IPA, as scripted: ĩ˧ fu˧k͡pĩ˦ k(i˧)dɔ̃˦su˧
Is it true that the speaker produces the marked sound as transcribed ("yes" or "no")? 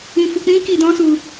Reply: yes